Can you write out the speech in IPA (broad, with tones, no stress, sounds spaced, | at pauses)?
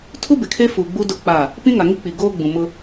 tʰ u˦ b ɪ˨ kʰ e˦ f u˨ ɡ͡b u˦ d ʊ˦˨ k͡p a˦˨ | p ĩ˦ ŋ a˨ ŋ i˦ k͡p i˨ ɡ oː˦ ɡ͡b ũ˨ m ʊ˦